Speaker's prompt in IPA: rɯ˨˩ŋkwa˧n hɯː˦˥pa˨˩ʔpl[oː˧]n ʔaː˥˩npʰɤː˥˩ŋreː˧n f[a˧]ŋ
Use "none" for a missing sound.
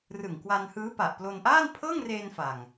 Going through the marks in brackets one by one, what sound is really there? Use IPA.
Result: o˧, a˨˩

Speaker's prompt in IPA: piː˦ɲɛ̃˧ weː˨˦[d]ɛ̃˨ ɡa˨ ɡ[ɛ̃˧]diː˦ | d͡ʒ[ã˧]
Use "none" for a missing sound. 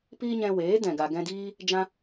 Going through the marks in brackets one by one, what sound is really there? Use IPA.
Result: d, ɛ̃˧, ã˧

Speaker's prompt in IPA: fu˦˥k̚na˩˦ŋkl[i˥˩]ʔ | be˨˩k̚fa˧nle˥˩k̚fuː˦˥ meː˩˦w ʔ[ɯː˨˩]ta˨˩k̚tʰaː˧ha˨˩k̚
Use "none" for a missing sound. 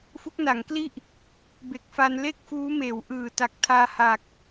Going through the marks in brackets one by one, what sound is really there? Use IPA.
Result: i˥˩, ɯː˨˩

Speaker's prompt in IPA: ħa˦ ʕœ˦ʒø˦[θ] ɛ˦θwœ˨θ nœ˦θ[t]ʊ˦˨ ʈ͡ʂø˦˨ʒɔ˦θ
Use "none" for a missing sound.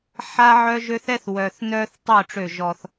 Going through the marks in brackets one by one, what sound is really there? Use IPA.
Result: θ, tˤ

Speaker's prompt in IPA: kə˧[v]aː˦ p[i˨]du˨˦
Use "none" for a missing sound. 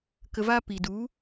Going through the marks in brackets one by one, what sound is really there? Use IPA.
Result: v, i˨

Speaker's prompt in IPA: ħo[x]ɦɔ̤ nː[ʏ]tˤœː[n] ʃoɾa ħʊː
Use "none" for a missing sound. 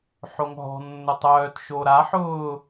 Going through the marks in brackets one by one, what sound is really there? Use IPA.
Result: ŋ, ʏ, t

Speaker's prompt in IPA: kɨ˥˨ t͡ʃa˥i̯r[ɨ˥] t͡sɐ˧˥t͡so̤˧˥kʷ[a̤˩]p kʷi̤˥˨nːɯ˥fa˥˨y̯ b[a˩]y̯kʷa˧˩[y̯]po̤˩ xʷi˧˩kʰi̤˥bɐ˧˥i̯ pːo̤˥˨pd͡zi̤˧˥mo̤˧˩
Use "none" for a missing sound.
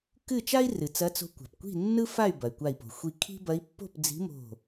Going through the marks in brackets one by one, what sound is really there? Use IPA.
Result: ɨ˩, a̤˩, ɐ˩, i̯

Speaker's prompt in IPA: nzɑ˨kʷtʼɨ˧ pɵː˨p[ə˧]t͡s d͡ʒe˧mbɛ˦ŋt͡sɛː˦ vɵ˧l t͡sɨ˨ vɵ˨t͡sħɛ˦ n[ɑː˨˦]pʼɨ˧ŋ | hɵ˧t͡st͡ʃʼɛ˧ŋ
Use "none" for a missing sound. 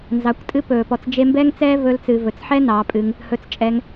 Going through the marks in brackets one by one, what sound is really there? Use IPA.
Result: ɔ˧, ɑː˨˦

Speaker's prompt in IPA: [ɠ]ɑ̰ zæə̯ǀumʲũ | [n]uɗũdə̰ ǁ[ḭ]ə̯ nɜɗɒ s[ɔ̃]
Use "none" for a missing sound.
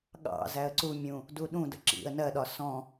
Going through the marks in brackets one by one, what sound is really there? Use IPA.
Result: ɠ, d, ḭ, ɔ̃

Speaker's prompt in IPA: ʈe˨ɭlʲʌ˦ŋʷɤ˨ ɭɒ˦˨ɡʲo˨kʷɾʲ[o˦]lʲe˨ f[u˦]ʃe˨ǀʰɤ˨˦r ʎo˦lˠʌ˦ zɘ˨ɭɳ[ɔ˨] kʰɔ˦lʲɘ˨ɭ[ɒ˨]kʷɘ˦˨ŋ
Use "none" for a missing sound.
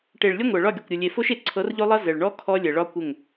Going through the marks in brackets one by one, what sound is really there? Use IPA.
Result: o˨, o˦, ɔ˦, ɒ˦

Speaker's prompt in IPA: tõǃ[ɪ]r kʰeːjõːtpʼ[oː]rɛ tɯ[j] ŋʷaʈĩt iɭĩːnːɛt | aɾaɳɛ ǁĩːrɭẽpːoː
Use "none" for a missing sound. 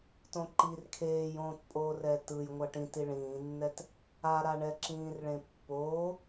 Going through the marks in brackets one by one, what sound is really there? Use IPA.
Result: i, oː, j

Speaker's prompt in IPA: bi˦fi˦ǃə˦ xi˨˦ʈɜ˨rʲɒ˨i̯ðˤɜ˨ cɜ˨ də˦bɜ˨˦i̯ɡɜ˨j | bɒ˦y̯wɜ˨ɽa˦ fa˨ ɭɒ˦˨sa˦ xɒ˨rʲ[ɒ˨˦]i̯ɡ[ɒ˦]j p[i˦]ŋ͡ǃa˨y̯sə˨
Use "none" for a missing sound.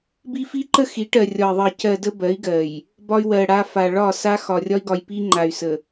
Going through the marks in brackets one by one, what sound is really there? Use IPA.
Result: ɒ˦, ɒ˨, i˦

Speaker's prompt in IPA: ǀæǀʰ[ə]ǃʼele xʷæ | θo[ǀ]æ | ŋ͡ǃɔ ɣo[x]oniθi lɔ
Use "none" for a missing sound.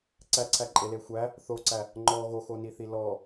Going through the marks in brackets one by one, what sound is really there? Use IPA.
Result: æ, ǀ, x

